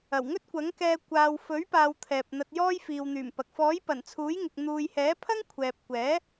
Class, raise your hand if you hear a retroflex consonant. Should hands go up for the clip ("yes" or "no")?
no